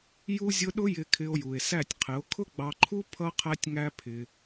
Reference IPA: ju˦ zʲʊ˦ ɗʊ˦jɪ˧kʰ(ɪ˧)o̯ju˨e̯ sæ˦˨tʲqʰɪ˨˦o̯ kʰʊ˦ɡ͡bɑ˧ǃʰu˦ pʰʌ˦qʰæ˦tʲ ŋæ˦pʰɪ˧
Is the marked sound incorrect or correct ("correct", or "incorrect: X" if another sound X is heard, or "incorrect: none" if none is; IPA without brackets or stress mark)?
correct